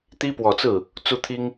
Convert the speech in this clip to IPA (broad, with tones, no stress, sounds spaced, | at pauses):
t̪ i˥ p w ɔ˨˩ t͡s ɹ̩˥˩ | t͡s u˥˩ t̪ʰ i˥ ŋ